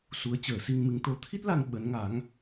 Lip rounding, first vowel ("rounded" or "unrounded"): rounded